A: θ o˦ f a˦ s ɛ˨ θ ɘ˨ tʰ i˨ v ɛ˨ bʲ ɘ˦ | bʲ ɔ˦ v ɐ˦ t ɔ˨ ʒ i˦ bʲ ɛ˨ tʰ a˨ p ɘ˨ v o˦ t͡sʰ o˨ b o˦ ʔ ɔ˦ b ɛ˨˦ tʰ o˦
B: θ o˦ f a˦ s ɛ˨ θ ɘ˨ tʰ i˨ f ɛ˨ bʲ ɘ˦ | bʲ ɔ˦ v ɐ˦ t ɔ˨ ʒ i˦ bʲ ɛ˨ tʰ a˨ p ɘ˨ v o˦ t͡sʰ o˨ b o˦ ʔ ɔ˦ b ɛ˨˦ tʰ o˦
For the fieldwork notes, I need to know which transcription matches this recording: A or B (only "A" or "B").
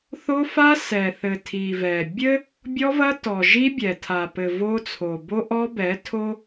A